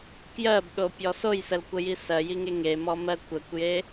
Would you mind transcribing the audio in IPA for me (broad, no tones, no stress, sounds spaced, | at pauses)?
k j ɜ b ɗ o pʲ ɔ s o j s ə l kʷ ə j i s ɜ j i ŋ e ŋ e m ɔ m ɜ kʷ ə kʷ j e